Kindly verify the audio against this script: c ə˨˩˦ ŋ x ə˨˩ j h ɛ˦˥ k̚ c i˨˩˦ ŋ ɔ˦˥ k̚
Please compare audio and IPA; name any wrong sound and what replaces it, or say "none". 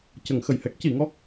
none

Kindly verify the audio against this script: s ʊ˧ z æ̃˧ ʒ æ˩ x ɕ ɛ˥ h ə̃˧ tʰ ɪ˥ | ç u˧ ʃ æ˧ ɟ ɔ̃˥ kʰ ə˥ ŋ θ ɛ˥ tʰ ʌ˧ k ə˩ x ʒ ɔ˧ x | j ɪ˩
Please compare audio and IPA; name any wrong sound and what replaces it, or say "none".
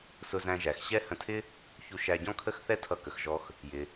ŋ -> x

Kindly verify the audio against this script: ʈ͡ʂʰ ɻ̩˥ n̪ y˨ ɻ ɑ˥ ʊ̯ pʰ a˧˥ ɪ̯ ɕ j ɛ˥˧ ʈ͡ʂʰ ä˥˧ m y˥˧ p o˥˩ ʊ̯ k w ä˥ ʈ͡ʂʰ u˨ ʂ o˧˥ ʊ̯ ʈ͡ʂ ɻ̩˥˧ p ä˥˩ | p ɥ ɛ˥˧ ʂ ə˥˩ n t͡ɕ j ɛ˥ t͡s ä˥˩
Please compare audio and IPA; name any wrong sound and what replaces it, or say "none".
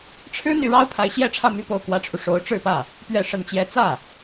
none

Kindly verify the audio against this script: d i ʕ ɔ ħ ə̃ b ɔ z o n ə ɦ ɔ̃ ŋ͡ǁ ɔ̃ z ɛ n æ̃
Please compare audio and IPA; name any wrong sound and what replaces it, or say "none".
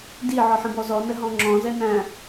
o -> ɔ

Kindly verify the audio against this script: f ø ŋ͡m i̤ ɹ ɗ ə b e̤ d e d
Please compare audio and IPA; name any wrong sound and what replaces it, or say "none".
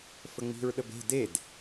ø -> ə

